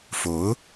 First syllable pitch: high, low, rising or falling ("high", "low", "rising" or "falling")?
rising